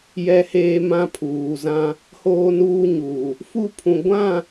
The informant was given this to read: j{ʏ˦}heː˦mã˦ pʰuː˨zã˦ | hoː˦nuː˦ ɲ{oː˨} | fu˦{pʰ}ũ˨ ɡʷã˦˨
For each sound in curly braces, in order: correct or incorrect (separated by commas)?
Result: incorrect, incorrect, correct